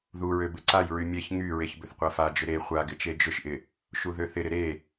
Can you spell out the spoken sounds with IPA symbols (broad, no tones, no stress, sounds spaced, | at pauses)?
ð u ɹ ø b ɪ ǀ a j ɹ y mʲ e ç ŋ y ɹ e ç b ʏ θ qʷ a f a d͡ʒ ʏ ɾ e χʷ a ɡ ɪ t͡ʃ e d͡ʒ ʏ ʃ ʔ ɪ | ʃ u ð ø θ ɪ ɾ ɪ ɾ e